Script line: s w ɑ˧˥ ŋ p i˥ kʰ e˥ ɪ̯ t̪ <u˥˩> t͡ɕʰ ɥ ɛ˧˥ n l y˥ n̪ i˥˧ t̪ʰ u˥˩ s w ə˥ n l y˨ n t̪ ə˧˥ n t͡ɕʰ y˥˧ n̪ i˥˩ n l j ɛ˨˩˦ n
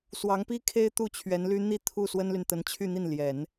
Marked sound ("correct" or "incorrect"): correct